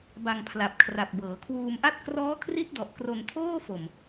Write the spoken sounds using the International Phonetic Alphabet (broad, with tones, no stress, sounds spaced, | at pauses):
b a˧ ŋ pʰ l a˨˩ p̚ kʰ r a˨˩ p̚ b ɤː˩˦ kʰ w uː˧ m ʔ a˥˩ t̚ k r ɔː˦˥ kʰ r i˦˥ t̚ d ɔ˨˩ ʔ k r o˧ n tʰ oː˥˩ f o˨˩ m